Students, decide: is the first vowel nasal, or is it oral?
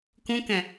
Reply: nasal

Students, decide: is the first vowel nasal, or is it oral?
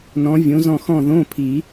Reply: nasal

